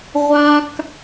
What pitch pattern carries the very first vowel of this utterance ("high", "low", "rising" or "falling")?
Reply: high